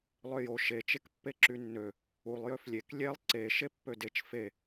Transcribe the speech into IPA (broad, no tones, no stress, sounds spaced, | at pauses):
lˠ ø j o ʃ e t͡ʃ e k pː e ǁ y nː ø | u lˠ j ø f lʲ e k lʲ e lˠ ǀ e ʃ e pː ø d e t͡ʃ f e